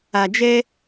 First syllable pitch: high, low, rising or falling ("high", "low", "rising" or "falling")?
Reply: low